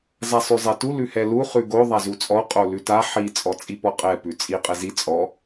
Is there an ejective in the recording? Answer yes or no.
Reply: yes